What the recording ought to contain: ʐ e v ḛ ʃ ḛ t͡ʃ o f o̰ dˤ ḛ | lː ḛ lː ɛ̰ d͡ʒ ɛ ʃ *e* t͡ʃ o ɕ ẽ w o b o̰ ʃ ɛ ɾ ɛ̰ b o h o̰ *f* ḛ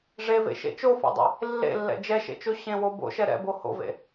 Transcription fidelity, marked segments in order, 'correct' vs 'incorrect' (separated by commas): incorrect, incorrect